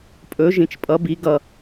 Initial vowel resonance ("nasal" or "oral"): oral